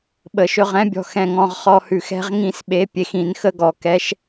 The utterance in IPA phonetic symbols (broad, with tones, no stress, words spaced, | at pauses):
ɓə˧˩˧ʃɵ˧ʁɛ̃˧˥bʲɔ̤˧˩ xɛ̃˧˩ŋɔ̃˧˩ʁ χɔ˧hʉ˧˩˧x ɛ̤˧ʁŋĩ˧˩sɓe˩˧ pʲe˩˧xĩ˧˩˧nxə˧˥ɡɔ˩˧ kɛ˧˥ʃ